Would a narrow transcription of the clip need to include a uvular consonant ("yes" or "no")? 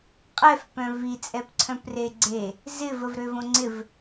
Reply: yes